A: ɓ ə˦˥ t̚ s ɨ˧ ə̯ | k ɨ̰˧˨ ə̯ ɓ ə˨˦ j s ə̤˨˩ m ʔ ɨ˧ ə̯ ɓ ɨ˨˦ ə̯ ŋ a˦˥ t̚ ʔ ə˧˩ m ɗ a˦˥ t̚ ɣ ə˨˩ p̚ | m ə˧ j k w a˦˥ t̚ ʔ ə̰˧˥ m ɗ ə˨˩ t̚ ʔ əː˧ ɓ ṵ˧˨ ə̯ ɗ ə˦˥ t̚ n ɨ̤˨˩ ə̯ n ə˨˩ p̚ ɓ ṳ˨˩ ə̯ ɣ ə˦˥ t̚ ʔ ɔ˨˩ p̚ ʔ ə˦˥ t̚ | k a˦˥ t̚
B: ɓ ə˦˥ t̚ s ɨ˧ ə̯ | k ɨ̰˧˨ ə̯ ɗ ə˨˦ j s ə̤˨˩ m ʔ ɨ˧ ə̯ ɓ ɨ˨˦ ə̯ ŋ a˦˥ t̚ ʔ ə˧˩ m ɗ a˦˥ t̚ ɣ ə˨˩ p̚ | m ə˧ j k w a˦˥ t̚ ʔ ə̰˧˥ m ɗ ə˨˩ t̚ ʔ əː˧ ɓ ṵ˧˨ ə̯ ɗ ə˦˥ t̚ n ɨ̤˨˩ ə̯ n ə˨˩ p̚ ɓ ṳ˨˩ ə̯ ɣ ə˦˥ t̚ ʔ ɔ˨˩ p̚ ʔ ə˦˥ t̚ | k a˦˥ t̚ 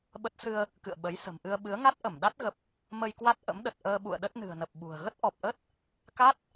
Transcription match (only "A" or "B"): A